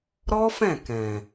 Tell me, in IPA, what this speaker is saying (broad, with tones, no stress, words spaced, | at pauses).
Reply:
ɾɔ˦fɛ̃˦˨ kɛ̃˨